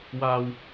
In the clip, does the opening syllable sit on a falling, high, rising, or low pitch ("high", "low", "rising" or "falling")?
low